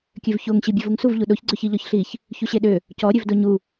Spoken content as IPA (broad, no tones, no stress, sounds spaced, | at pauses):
kʲ ø v ç o ŋ ɕ i bʲ e v u ŋ s u v ʎ u ɗ o ç ɡ͡ǀ ø ç i ʎ ɔ ç ɬ i ç | ç u ɕ e ɗ ø | c ɔ ɾʲ ø v d o ɲ u